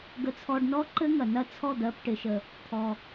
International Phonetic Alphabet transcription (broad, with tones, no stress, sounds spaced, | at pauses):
ɡ ə˧ t͡sʰ ɔ˧ ɖ n ɔ˦ ǃ ɘ˦ ŋ ɐ˨ n ɐ˦˨ t͡sʰ ɔ˦˨ d̪ ɜ˧ p ʈ ɪ˧ ʃ ə˧ | t̪ʰ ɔ˧